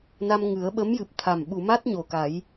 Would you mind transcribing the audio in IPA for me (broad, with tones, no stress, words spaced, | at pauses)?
na˧mŋɨ˨˩˦ə̯ ɓə˧˥mjɨ˨˩p̚t̪ʰa˨˩m ɓu˨˩˨ma˦˥t̚ ɲo˨˩ka˨˩˦j